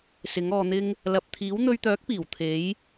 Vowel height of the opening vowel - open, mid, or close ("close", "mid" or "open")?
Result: close